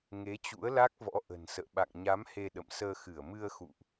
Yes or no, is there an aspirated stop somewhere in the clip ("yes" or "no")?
no